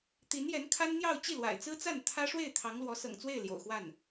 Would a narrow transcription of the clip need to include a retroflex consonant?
yes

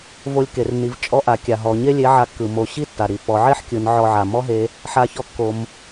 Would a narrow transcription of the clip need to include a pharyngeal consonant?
yes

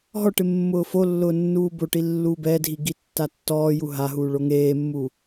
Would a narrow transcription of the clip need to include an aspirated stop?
no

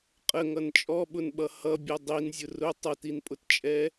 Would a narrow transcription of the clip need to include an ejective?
yes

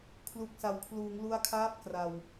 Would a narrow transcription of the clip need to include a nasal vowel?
no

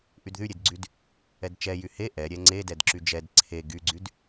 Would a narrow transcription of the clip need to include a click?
yes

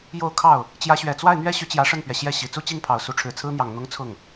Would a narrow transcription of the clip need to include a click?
no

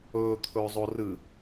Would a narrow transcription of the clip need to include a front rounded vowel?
no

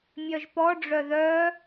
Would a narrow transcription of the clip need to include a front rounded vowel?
yes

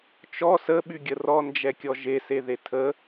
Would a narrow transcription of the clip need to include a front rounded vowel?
yes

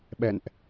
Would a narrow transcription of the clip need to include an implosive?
yes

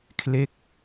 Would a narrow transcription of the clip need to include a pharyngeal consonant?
no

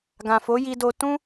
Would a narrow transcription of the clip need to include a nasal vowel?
yes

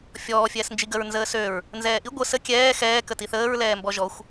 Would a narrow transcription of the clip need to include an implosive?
no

